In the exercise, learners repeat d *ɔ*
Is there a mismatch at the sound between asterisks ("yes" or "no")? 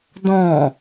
yes